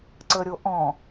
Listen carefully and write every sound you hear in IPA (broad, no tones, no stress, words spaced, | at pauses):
ǀəɾʲoʔɔ̃